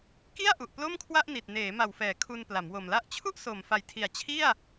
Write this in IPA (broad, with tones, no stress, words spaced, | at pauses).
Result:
ki˥˩a̯ ʔu˨˩ʔplo˥˩mkʰwa˥˩ʔni˨˩t̚ neː˩˦ma˨˩wfɛː˩˦ kʰu˧npla˩˦mwo˨˩mla˥˩ʔ t͡ɕʰu˥˩ʔso˨˩m fa˨˩jtʰi˨˩a̯ t͡ɕʰi˥˩a̯